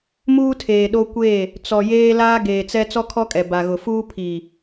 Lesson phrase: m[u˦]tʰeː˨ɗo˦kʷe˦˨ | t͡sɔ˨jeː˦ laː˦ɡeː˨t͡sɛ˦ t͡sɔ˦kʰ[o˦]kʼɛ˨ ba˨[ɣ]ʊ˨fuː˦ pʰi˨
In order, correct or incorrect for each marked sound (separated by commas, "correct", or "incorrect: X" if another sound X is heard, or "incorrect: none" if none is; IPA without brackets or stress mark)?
incorrect: uː˦, incorrect: ɔ˦, correct